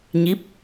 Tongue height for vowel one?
high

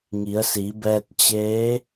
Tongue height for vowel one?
high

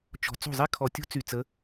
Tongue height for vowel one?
mid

